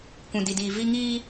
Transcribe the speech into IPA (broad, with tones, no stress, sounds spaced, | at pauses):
kʷ ũ˨ d i˨ d iː˨ v i˦ ŋ iː˦